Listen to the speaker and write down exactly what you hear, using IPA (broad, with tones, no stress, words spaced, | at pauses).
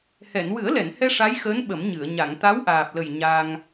hɛ˨˩˨nwɨ˨˩˦ə̯lɛ˨˩˨nhɛ˧ ʂa˧˥jxəː˧˥n ɓə˨˩˦mɲɨ˨˩˨ə̯ ɲa˨˩˨ŋt̪a˧˥wʔaː˨˩p̚lə˨˩j ɲa˧ŋ